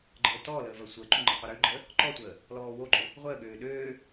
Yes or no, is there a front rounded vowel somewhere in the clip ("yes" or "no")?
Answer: yes